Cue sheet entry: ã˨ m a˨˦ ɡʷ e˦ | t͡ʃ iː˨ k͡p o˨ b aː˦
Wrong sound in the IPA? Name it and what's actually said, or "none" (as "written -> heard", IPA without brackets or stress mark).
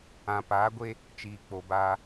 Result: m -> p